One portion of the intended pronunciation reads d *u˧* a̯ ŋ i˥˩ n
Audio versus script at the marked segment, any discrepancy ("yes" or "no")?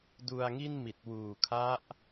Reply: no